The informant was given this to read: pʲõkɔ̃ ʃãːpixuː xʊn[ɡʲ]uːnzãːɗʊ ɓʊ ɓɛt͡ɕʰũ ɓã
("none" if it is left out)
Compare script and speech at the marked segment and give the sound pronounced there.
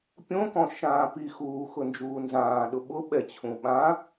d͡ʒ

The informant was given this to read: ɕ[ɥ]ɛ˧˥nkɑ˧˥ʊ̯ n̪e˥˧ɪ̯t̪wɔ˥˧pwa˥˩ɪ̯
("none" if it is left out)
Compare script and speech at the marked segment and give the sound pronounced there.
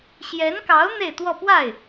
j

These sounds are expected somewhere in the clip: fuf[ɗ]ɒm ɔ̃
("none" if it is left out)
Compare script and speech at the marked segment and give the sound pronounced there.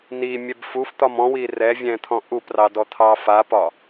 t̪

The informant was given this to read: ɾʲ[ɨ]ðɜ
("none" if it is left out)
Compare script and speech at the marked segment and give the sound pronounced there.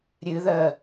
ɨ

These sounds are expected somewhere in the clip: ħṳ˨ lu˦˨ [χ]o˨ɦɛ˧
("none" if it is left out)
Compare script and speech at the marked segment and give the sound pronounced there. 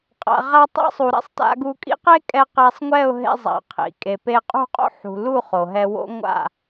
χ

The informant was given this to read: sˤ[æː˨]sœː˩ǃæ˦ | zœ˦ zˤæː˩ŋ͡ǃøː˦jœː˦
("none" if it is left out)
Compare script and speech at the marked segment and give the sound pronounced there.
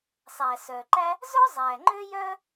æː˩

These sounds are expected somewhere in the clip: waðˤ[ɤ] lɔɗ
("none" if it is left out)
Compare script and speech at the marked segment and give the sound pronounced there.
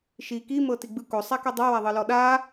ɤ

